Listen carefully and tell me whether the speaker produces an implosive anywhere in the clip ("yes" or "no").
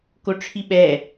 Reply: yes